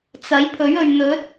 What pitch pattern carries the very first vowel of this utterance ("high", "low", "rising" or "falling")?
rising